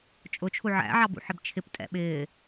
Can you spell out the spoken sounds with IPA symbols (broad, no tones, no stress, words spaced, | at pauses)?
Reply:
t͡ʃʼʊt͡ʃʰu ʕæ̰ʕɑ bṵħɪbt͡ʃʰɪptʼɛ̰ ɓɪː